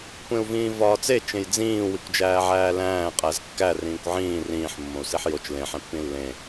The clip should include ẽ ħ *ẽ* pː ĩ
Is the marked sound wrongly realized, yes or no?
no